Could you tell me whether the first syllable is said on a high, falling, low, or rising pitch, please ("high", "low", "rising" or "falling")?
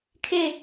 falling